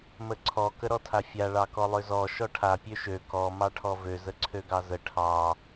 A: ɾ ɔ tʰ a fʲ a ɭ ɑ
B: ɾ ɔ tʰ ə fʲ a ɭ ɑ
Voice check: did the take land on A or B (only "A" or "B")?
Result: A